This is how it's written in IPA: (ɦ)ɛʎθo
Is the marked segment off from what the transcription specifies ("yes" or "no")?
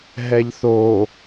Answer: no